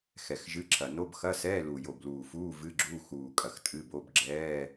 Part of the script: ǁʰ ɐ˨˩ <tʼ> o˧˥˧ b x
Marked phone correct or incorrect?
incorrect